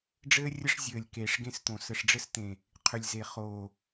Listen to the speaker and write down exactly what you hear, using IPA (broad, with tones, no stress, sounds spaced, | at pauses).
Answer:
ɖ͡ʐ ɘː˦ rʲ ə˦ ʂ zʲ ɘː˨ lʲ k eː˨ ʂ ɡ ẽ˦ s t̪ õ˨ s ə˨ ʂ ɖ͡ʐ ɘ˦ s t̪ ẽ˨ | qʰ ʏ˨ lʲ z e˨ χ oː˨